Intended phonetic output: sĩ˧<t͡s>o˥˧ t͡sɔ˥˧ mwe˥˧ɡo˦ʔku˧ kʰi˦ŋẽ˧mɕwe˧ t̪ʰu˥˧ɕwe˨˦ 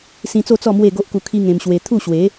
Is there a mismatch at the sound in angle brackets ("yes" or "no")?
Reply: no